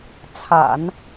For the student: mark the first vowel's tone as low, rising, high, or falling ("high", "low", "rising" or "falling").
low